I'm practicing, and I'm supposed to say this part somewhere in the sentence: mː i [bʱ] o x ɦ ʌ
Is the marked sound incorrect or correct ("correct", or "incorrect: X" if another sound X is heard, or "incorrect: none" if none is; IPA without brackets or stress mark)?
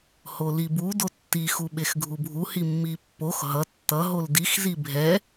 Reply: incorrect: pː